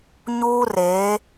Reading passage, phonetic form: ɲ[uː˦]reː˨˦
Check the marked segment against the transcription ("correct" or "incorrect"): correct